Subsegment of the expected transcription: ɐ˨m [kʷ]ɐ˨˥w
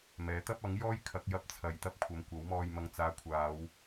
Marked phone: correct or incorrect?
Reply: correct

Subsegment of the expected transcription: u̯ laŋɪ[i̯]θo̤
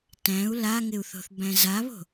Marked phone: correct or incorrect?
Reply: incorrect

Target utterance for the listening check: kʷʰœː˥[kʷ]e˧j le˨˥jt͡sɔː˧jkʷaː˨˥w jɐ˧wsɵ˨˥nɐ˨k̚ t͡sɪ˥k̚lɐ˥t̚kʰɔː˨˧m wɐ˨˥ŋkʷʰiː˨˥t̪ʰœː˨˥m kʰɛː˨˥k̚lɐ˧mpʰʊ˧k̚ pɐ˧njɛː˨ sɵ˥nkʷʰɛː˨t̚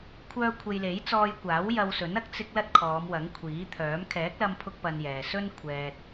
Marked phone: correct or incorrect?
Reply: incorrect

